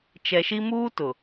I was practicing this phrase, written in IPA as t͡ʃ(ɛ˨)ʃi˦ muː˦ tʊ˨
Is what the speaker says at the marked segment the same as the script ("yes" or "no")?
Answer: yes